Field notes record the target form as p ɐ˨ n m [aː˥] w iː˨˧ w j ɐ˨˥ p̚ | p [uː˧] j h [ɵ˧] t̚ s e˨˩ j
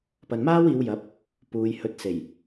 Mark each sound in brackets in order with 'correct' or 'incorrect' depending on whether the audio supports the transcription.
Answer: correct, incorrect: uː˨, incorrect: ɵ˨˥

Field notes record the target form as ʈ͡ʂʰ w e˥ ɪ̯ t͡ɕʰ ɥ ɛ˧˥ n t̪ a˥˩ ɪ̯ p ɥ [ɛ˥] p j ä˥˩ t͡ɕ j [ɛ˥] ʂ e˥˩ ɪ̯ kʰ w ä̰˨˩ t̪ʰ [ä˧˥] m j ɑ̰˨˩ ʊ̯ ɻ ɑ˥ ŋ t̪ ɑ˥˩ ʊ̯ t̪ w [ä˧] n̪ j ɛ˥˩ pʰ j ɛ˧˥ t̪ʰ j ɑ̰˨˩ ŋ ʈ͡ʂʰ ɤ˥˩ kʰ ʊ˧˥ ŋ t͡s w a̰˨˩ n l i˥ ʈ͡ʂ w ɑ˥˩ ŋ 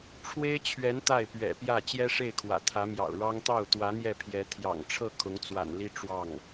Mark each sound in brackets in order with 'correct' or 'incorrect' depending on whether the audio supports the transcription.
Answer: incorrect: ɛ̰˨˩, correct, correct, incorrect: ä˧˥

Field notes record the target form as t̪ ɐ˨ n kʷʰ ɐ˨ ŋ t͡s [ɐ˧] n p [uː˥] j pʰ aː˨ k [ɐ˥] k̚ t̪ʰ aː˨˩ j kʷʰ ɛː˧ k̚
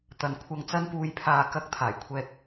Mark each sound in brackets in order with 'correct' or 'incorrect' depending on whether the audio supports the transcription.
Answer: correct, incorrect: uː˨, incorrect: ɐ˨˥

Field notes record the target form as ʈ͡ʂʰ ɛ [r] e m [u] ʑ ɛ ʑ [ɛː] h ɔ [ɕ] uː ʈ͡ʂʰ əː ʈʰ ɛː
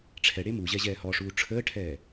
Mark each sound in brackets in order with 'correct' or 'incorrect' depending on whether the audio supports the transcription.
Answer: incorrect: ɽ, correct, correct, incorrect: ʂ

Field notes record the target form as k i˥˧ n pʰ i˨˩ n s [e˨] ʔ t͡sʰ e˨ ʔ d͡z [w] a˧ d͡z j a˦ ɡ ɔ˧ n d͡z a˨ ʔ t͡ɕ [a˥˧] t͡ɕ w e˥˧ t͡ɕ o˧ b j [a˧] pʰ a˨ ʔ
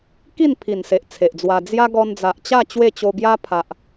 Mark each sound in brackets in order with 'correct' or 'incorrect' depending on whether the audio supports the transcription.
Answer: correct, correct, correct, incorrect: a˦

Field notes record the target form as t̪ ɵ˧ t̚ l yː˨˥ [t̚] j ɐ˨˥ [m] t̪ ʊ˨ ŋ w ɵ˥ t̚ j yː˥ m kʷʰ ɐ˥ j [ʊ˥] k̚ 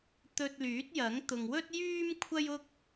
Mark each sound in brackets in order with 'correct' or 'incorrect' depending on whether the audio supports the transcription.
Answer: correct, incorrect: ŋ, correct

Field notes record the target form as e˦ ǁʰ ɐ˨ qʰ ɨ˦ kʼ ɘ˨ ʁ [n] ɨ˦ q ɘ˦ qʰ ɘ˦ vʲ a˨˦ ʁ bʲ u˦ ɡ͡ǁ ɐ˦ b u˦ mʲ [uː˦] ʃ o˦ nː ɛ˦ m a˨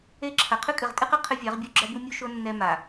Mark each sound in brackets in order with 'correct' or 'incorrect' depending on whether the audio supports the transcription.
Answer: incorrect: tʼ, incorrect: u˦

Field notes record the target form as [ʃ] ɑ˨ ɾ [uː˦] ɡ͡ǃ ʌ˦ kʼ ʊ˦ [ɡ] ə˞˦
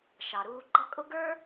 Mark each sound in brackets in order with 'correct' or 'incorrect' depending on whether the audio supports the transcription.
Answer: correct, correct, correct

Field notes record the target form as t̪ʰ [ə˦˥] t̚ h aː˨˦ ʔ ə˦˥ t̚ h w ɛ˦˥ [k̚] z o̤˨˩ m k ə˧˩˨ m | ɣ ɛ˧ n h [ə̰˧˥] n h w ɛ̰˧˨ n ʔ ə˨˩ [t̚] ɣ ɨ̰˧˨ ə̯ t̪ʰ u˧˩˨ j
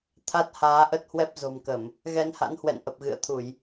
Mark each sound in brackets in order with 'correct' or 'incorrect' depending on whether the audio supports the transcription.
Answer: incorrect: a˦˥, incorrect: p̚, incorrect: a̰˧˥, incorrect: p̚

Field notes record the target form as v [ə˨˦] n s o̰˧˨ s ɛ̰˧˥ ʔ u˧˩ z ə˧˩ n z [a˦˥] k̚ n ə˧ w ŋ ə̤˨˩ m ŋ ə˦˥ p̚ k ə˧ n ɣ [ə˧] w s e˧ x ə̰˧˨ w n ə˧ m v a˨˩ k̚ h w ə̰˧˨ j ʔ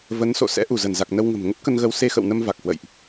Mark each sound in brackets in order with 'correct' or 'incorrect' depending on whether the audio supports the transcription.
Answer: correct, incorrect: a˨˩, correct

